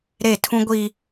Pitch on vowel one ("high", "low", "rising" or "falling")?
falling